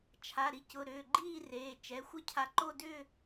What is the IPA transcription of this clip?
t͡ʃʰ a˩˧˩ ɾ i˨˦ c ʊ˩˧˩ ɾ ʏː˩˧˩ ɡ͡ǃ iː˥˧ r eː˩˧˩ t͡ʃ ɛ˩˧˩ xʷ ə˥˧ cʰ a˨˦ ǃ o˥˧ d ʏ˥˧

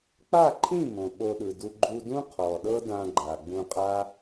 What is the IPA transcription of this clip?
k͡p a˦˨ ǃʰ ĩ˦˨ m õ˨ ɓ o˧ ɗ ɯ˨ d u˧ ɡ͡ǃ u˧ d ũ˦ qʰ ɔ˨ ɗ ɤ˦ d ã˧ ɡ͡ǃ a˨ ɡ͡b ũ˧ qʼ a˦

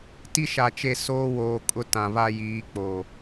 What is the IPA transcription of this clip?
t i˦ ʃ a˨ t͡ʃ e˦˨ s oː˦ w oː˨ kʼ ʊ˦ t ã˨ β a˦ j iː˨˦ k͡p o˨

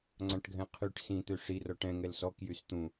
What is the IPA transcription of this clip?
ŋ͡ǀ ã ʈ ɡʱ ɛ̃ qʰ y ʈ s ĩ t̪ ø ʂ i r ɔ ʈ ɛ̃ ŋ ɛ l s ɔ k j y s t̪ ũ

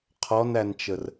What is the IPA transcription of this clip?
qʰ ɔ n æ n t͡ʃ ə r

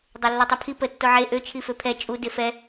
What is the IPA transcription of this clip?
dˤ e lː o tˤ ɛ pʰ i p ə tː o ʕ e ʔ ø t͡ʃʰ i f ø pʰ ɛ t͡ʃʼ u d e f ɛ

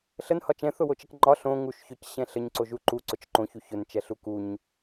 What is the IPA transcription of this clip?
ɬ ə n h ɒ t͡ʃ ɛ̃ θ ʊ w o t͡ʃ ə k ŋ͡ǃ ɒ ɬ õ ŋ u ʃ ç ʊ c ɕ ɛ̃ ɬ ə ɲ ǀ o ʒ u ǃ u ǀ ʊ t͡ʃ ǃ õ ç u ç ʊ n t͡ʃ ɛ ɬ u k u ɲ

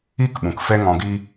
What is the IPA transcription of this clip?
i˦˨ k ɓ ũ˨ k f ɛ˦ ŋ ɔ̃˧ ɡ i˦

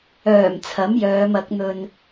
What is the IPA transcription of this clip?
œː˨˩ m t͡sʰ ɐ˨˥ m j œː˨˧ m ɐ˨˥ k̚ n̪ ɵ˧ n

